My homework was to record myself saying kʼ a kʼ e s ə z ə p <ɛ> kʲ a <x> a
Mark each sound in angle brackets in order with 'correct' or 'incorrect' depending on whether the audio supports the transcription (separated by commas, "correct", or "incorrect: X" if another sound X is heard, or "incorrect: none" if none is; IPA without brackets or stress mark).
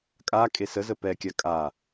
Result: correct, incorrect: kʼ